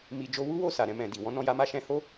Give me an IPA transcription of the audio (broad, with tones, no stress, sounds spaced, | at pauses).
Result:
m i˨ d͡ʒ o˧ w u˦ w o˦˨ s a˨ ɾ ɛ̃˧ m ɛ̃˨ d i˨ w ɔ̃˨˦ n ɔ̃˦˨ j a˨˦ m a˧ ʃ ɛ̃˧ h o˦